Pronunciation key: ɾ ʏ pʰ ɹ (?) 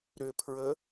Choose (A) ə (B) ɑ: A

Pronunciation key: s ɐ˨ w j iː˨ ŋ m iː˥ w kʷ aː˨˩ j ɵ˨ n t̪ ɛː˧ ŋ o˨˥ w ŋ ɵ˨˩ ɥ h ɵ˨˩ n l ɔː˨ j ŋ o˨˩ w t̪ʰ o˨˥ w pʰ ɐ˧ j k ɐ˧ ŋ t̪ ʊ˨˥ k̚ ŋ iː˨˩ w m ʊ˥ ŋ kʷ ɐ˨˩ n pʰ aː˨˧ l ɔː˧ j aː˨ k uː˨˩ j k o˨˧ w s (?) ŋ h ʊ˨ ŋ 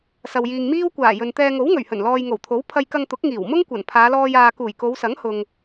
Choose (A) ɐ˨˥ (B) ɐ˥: A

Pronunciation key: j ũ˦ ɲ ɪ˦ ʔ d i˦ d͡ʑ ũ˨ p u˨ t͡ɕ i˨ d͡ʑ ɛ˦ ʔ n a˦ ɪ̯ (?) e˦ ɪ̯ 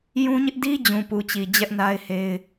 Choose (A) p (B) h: B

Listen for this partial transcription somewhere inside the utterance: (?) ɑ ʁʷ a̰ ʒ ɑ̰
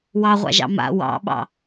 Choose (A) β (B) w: B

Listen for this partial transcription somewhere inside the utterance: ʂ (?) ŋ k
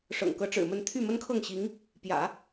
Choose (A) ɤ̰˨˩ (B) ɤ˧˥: A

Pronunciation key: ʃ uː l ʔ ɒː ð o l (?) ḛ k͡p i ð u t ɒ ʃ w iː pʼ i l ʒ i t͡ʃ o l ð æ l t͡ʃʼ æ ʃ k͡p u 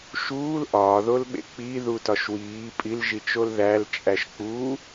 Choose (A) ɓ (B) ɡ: A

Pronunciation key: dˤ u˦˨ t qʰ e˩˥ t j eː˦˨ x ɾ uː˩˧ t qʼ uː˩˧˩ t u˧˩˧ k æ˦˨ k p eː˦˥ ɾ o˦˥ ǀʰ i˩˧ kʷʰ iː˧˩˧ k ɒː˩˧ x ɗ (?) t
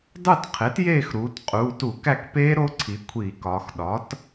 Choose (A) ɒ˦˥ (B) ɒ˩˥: B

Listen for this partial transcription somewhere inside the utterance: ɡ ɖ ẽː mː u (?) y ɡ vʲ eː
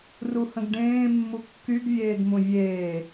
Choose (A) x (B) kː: B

